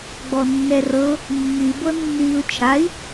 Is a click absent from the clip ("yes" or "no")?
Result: yes